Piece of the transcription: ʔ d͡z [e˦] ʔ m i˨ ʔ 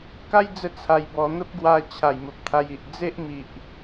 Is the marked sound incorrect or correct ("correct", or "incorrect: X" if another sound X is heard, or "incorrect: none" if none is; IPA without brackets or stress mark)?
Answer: correct